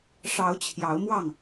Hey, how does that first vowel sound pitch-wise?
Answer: rising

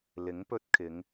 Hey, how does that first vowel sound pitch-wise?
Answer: rising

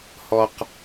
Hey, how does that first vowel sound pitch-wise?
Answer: low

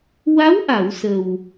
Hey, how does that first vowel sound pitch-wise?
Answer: rising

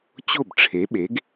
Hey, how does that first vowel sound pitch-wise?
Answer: falling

